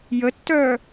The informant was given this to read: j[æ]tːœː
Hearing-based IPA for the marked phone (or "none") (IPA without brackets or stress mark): ə